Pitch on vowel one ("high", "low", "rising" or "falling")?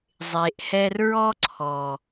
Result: low